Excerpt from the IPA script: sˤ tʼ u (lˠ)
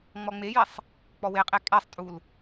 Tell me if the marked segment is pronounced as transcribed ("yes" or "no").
no